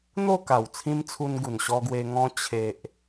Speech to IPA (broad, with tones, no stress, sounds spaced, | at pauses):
n̪ o˥˧ k a˨˩ w t͡sʰ ĩ˧ m t͡sʰ u˧ n ɡ u˨˩ n ɕ ɔ˧ ɡ w e˧ ŋ ɔ̃˧ t͡ɕʰ e˨ ʔ